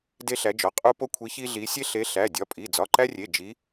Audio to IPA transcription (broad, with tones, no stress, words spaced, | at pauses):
de˦ɬæ˨˦d͡ʒɒ˩˧˩ qʼu˦po˦kʷʰi˨˦ çi˦ɮi˨˦ sʲe˦ɬe˨˦ ɬæ˩˧˩dʲɒ˩˧˩pʼi˩˧˩ d͡zɒ˩˧˩ǃæ˦rʲe˩˧˩ d͡ʒi˨˦